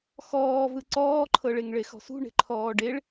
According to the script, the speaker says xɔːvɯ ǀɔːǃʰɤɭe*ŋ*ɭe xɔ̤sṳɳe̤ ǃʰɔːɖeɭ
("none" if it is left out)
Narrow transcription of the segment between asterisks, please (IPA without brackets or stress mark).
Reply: ŋ